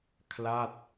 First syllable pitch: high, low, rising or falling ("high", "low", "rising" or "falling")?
falling